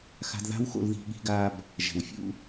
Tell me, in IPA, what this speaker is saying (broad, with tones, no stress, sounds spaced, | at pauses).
x a̤˧ d ð a̤˥ w x o̰˧ l ð i̤˧ ɠ i̤˥ ɡ a˥ b | ʒ ɛ̤˩ w fʲ ṵ˥